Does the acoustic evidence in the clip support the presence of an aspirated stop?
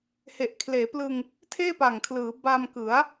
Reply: yes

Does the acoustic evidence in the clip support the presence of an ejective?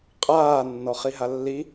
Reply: yes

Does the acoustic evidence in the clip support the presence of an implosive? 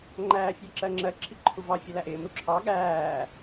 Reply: yes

